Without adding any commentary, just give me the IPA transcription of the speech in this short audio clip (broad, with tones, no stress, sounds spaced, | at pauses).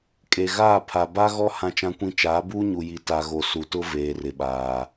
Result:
kʼ e˨ ɣ aː˦˨ pʰ a˨ b a˦ ɣ ɔ˦ h ã˦ t͡ʃ ã˦ kʷ ĩ˦ t͡ʃ aː˨˦ b uː˦ ɲ u˨ j i˨˦ t a˨ ɣ o˨ s u˨ t ʊ˦ v eː˨ r ɪ˨ ɓ aː˨